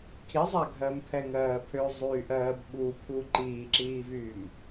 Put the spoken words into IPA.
kʰizˤa ɡʱɜmpʰɛŋɜː pʰøzˤyːʔɜːb ɓupʰu ǃiːǁiːvyːm

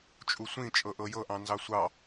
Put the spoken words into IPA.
t͡ʃʼusʷĩ t͡ʃʼɤʔɤjɤ ʔɑ̃nzɑsʷɑ

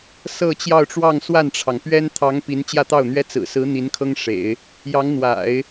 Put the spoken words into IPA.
sɤ˥˧t͡ɕjɑ˥˧ʊ̯ʈ͡ʂwɑ˥˧ŋ swa˥˩nʈ͡ʂʰɑ˩ŋpɥɛ˥n t̪ʰɑ˧˥ŋ pi˧˥nt͡ɕjä˥˧t̪ɑ˥˩ʊ̯n̪ɥɛ˥ t͡sɹ̩˨˩sɹ̩˧˥ n̪i˧˥nkʰɤ˥ŋ ʂḛ˨˩˦ɪ̯ | jɑ˧˥ŋn̪wa̰˨˩˦ɪ̯

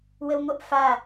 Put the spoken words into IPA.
wəwŋʷəʔ fa

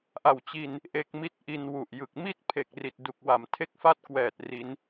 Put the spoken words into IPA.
ʔa˨˩wt͡ɕi˧n | ʔe˦˥k̚ mi˥˩t̚ʔi˧nwu˨˩ʔjɯ˨˩k̚ mi˥˩t̚pʰe˨˩k̚ri˨˩t̚ du˨˩k̚wa˨˩m tʰe˥˩k̚fa˥˩t̚kwɛː˨˩t̚ ri˦˥n

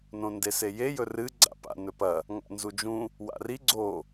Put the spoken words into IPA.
nõndeseje jɵrɨ ɡ͡ǀa̰pa̰ nɵpɐ | ŋa̰nzud͡ʒũ | wa̰ri ɡ͡ǀo

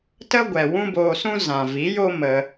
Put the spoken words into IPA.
tə˦ɡʷɛ˨ wũ˦boː˧sũ˦ zã˨vi˨˦jo˦ mə˧

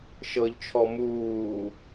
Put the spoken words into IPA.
ʃɤʎt͡ʃʰɔ muː

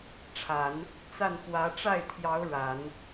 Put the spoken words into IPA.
ʈ͡ʂʰa˨˩˦n | t͡sa˥˩nxwä˧˥ ʈ͡ʂa˥˩ɪ̯t̪ʰjɑ˧˥ʊ̯ ɻa˨˩˦n

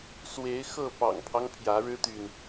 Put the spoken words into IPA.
swe˨˦ɪ̯ xɤ˥˨pɑ̰˨˩ŋpʰɑ˦ŋ pʰjä˨˦ɻɻ̩˦t̪y˨n

